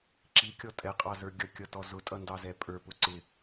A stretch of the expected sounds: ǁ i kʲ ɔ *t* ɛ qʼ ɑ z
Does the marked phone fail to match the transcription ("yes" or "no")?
yes